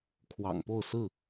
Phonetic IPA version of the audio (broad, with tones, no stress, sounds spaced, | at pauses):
kʰ w ɑ̰˨˩ ŋ p o˥˨ ʊ̯ s ɹ̩˥˨